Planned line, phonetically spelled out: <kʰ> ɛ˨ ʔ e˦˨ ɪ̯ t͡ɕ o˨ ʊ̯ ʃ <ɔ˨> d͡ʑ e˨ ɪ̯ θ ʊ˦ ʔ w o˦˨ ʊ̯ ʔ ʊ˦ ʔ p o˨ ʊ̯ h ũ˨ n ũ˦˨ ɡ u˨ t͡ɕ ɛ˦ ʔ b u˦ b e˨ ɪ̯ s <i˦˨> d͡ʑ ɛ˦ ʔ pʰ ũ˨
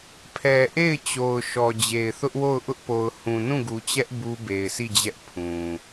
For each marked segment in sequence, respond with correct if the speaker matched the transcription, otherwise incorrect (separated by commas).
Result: incorrect, correct, correct